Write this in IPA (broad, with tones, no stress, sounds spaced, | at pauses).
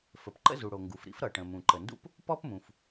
f ə˩ p ǃ ə̰˥ z u˩ ɽ o˩ ŋ ɡ u˩ f ɾ ḭ˥ f ɾ ʌ˩ ʈ ə̃˩ m ũ˩ ǃ ə˩ n d ṵ˥ p | p ɔ˥ p m ũ˩ f